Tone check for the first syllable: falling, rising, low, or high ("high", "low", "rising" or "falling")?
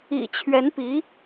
low